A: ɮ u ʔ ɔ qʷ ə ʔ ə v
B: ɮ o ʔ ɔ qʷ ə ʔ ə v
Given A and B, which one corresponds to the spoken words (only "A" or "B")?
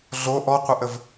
B